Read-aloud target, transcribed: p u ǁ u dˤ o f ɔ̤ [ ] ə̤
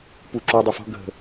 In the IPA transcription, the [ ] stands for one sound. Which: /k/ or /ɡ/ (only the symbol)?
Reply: ɡ